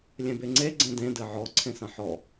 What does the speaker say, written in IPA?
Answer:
lʲ ẽ b e ŋ͡ǀ e ɡ͡ǀ ẽ d ẽ d ɘ ʕ ɔ ǀʰ ẽ s ɐ̃ ħ ɔ

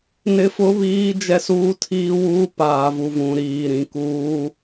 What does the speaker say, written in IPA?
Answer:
n ɪ˦ f ʊ˦ β iː˦ d͡ʒ ɛ˦ s uː˦ tʰ iː˦ w uː˦ p aː˨ v u˨ v ũ˨ ɾ iː˨ ɾ ĩ˨ k uː˦

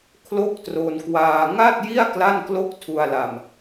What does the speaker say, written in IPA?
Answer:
kʰ l o˥˩ k̚ t r o˧ n k w aː˧ ŋ a˥˩ t̚ j i˥˩ a̯ k l a˥˩ n k l o˥˩ k̚ tʰ u˧ a̯ l a˧ m

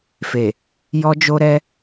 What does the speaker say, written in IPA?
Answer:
f e˨ | j ɔ˧ d͡ʒ o˧ ɾ ɛ˧

